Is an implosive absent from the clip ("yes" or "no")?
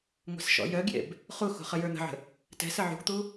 yes